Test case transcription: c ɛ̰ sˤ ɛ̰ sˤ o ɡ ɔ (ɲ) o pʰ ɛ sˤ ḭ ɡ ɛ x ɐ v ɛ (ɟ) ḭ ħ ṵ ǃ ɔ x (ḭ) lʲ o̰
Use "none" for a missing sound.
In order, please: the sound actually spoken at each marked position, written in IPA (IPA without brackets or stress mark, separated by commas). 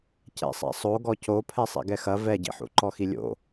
c, ɟ, i